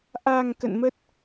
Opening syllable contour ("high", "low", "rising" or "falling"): low